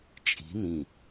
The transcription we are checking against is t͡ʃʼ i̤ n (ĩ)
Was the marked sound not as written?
no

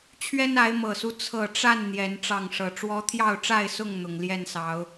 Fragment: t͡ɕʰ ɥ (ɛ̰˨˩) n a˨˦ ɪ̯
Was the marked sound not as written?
yes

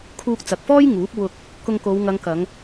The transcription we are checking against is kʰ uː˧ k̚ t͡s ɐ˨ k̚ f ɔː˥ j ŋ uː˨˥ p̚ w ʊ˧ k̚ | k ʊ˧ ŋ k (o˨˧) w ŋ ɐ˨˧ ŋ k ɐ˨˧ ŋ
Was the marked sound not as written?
no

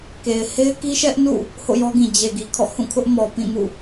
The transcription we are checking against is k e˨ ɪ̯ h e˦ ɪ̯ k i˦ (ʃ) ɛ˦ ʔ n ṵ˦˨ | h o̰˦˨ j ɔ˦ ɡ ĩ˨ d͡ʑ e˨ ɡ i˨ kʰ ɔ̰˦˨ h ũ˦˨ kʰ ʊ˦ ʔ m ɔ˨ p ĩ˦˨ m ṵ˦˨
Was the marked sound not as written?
no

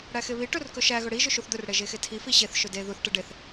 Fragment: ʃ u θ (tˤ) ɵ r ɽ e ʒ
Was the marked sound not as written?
yes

